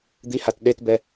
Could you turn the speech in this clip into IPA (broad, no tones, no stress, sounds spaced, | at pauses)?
d̪ i h a t ɗ e t b ɛ